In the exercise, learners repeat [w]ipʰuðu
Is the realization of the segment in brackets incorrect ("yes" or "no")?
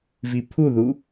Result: yes